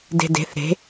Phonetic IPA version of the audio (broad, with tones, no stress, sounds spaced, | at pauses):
d e̤˧ d e̤˨˦ θ ɾ e̤˨˦